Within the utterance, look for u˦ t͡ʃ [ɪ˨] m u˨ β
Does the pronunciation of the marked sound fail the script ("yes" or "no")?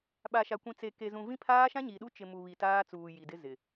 no